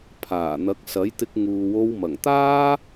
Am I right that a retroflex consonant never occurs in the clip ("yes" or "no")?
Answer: yes